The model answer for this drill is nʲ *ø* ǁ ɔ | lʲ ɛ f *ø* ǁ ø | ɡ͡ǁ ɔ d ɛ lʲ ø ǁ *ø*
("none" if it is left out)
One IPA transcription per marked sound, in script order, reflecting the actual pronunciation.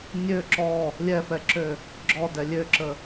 ø, ɛ, ə

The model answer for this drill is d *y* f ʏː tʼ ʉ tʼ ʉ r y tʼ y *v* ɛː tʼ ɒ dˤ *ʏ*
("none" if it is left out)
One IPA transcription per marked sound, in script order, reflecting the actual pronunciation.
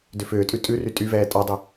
ʏ, v, ʏ

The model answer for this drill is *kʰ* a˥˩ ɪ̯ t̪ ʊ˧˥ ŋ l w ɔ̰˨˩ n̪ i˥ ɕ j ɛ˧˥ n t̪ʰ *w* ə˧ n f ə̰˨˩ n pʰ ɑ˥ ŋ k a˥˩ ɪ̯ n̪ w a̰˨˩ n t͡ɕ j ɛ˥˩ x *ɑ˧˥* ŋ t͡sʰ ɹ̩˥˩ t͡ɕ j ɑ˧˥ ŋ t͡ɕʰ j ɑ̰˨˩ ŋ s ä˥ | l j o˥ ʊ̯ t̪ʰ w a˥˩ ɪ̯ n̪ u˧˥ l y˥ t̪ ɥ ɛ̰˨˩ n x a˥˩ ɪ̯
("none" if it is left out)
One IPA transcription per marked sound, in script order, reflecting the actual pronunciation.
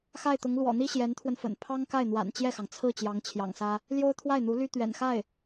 x, w, ɑ˩

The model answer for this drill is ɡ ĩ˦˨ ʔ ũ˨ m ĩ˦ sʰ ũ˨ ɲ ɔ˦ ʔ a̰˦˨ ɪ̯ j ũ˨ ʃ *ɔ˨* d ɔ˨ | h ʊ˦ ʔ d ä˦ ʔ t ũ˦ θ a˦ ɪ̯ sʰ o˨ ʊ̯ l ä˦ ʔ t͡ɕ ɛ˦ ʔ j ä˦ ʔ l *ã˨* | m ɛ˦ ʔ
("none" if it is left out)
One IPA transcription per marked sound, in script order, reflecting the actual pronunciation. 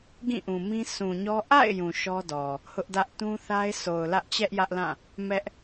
ɔ˦, ã˦˨

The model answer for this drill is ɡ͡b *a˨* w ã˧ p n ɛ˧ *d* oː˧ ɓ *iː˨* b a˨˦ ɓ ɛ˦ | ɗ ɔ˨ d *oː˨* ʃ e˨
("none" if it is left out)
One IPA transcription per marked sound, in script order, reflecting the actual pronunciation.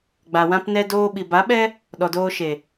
a˨, d, i˨, oː˧

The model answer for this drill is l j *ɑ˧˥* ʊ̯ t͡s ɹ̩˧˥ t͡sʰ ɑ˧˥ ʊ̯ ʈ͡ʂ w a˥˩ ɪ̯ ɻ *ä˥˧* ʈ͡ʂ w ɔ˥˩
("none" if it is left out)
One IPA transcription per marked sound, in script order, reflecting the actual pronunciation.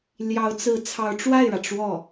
ɑ˧˥, ä˩

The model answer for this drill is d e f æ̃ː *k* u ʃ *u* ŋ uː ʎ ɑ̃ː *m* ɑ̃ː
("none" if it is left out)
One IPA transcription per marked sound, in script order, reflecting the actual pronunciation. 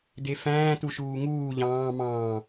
t, uː, m

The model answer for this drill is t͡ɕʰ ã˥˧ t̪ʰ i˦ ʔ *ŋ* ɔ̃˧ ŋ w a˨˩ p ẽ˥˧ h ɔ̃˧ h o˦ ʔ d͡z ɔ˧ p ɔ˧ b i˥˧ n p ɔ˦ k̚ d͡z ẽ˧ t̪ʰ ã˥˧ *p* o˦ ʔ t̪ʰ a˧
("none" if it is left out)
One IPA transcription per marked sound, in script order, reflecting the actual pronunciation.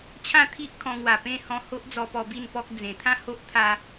kʰ, h

